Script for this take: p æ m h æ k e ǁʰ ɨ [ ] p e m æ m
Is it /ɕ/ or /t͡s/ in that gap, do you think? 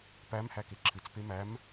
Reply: t͡s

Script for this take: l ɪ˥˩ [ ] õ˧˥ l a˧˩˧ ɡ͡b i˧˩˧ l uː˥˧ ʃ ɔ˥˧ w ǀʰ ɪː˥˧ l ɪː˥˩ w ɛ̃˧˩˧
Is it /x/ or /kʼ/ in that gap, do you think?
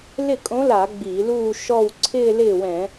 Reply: kʼ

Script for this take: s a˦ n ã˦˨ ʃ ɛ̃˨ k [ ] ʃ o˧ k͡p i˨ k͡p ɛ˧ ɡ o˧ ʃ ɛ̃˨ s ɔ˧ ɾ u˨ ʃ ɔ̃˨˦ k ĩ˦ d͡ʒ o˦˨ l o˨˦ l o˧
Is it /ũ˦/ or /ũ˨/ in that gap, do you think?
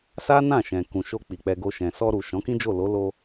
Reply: ũ˨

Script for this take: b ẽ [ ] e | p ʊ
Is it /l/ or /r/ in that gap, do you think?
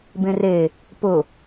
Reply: r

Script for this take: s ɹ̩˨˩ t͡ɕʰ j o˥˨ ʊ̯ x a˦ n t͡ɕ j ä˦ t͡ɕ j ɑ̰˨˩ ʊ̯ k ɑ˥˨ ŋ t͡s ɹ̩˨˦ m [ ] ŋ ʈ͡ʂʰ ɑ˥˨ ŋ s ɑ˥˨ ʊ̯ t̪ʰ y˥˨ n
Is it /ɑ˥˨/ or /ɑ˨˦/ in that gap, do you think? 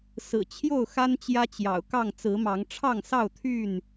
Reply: ɑ˨˦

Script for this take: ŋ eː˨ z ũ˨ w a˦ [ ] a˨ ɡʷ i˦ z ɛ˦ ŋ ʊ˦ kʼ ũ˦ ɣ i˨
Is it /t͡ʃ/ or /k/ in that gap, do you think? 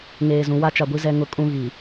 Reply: t͡ʃ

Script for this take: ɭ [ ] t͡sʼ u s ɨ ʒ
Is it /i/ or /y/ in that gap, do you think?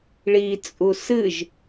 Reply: i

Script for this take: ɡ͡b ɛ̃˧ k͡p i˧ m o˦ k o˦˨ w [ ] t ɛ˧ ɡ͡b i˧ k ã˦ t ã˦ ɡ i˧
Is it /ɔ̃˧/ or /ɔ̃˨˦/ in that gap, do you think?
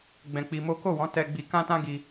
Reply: ɔ̃˨˦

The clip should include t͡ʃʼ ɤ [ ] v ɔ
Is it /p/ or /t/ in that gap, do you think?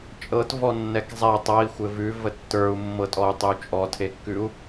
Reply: t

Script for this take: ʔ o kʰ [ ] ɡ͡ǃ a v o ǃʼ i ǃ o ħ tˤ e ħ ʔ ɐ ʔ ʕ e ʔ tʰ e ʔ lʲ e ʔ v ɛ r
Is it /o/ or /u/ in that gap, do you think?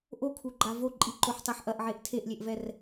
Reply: u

